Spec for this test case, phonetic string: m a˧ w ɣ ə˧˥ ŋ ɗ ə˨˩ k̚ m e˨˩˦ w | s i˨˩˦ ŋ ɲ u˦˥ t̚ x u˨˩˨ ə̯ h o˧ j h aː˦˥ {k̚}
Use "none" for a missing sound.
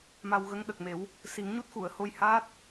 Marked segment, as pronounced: t̚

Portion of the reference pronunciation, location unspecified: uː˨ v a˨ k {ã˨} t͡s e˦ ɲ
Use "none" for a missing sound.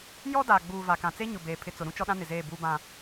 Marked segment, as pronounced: ã˨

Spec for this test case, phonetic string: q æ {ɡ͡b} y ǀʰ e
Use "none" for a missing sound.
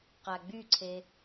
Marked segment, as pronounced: ɡ͡b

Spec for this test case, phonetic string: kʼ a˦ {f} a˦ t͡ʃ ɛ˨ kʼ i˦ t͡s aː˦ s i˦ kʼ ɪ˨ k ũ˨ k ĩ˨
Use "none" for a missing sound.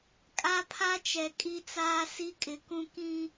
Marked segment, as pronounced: pʰ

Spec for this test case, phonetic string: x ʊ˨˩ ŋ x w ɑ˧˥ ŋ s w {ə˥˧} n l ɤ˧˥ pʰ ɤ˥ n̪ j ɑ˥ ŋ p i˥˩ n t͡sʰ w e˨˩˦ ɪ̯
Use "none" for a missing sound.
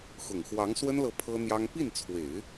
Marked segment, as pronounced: ə˥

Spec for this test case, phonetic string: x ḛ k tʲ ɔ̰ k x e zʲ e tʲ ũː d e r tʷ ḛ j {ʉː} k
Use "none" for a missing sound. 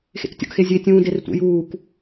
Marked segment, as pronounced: uː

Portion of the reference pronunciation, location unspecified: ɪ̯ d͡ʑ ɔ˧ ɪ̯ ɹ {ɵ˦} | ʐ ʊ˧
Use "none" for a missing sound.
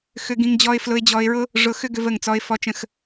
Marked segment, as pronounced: ʊ˦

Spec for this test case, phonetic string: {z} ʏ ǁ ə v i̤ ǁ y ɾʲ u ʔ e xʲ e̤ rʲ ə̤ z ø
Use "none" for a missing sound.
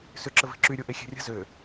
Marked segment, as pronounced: s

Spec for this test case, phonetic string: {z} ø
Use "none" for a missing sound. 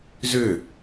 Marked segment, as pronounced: z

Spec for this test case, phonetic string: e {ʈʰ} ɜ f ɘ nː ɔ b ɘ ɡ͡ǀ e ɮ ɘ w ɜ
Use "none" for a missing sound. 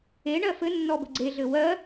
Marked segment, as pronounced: ɳ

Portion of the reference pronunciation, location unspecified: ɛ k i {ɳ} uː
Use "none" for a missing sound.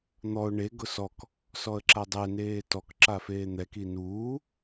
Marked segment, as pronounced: n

